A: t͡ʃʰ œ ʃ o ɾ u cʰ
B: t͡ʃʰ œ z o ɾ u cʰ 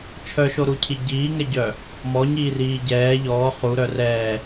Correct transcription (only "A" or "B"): A